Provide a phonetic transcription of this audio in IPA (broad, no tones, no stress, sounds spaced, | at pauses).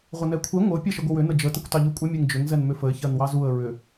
ʁʷ ə n ɛ kʷʰ ɛ ŋʷ ə ʊ̯ pʲ ɛ ʃ ə ɡʷ ə w ʏ n ə d͡ʒ ə t ə kʷ t ɑ ʎ u kʷʼ ə mʲ ɛ ŋ d͡ʒ ʏ ŋ z ɛ n m ʏ f ə ɪ̯ ç ɜ n w ɑ z u ə̯ ɹ ʏ